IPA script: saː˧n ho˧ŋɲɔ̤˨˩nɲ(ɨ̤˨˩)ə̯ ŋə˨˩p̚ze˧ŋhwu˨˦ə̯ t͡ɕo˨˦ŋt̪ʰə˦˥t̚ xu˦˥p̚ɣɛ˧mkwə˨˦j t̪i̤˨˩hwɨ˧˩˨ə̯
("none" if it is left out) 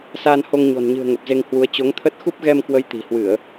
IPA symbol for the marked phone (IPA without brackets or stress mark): ɨ̤˨˩